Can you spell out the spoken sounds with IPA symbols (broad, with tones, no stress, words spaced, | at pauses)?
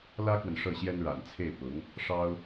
lä˥kwə˨n ʂɤ˥˩ɕjɛ˥n ɻa̰˨˩nt͡sʰe˥˩ɪ̯ pʊ˧˥ŋ | ʂɑ˥ʊ̯